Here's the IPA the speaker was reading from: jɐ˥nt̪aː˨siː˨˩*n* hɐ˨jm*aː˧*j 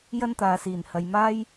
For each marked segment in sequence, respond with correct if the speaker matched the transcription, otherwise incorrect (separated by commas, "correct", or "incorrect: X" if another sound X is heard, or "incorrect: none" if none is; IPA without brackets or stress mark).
correct, incorrect: aː˥